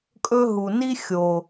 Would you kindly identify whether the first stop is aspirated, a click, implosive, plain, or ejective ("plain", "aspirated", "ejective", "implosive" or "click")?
ejective